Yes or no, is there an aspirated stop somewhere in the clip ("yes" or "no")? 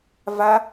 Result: no